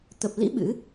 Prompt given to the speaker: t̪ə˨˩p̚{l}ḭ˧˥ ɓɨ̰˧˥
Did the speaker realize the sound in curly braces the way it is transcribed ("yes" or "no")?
yes